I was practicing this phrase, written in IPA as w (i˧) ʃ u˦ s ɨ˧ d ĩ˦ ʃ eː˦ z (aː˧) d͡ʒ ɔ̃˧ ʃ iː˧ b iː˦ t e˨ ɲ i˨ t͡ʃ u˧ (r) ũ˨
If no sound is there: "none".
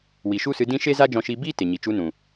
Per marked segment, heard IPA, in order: i˨, aː˦, n

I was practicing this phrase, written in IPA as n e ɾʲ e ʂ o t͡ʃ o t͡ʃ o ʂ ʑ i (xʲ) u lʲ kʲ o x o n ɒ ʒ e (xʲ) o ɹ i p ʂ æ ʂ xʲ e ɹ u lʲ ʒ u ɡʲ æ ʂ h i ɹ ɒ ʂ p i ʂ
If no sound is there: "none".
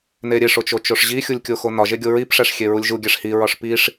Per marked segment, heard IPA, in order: xʲ, ɡʲ

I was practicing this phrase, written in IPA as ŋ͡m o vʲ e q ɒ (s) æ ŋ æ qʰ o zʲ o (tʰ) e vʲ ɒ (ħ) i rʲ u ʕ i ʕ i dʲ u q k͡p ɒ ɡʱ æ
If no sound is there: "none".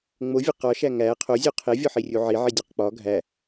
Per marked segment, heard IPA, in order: ʃ, qʰ, ħ

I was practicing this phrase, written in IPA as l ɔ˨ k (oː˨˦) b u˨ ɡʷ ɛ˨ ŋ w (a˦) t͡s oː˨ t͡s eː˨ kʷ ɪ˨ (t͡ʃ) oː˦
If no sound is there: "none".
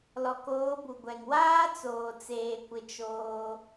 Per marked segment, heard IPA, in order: oː˨˦, aː˦, t͡ʃ

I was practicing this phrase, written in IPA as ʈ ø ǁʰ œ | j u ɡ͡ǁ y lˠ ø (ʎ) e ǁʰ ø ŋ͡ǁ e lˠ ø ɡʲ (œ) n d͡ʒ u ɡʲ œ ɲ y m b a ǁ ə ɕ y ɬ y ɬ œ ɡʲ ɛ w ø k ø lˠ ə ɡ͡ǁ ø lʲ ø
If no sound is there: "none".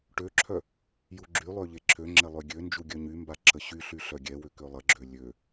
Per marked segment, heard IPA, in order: ʎ, ø

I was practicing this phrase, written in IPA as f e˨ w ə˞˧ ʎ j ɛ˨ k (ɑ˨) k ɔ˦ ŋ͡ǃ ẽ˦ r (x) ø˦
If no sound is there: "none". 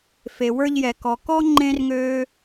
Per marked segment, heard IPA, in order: ɔ˨, ŋ

